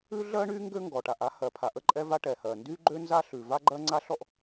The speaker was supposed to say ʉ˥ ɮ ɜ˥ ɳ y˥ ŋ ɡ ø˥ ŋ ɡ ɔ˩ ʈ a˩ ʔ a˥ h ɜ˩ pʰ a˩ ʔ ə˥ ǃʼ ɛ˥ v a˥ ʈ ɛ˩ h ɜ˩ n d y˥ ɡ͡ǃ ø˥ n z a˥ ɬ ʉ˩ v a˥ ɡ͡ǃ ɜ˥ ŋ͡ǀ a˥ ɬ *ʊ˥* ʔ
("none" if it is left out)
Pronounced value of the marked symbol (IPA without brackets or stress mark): ɔ˥